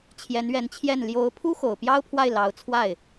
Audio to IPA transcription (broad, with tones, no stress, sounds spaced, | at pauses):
t͡ɕʰ j ɛ˧˥ n ɥ ɛ˧˥ n t͡ɕʰ j ɛ˥˩ n l j o˧˥ ʊ̯ pʰ u˥ x o˨˩ ʊ̯ p j ɑ˥ ʊ̯ pʰ w a˥˩ ɪ̯ l ɑ˧˥ ʊ̯ t͡sʰ w a˥˩ ɪ̯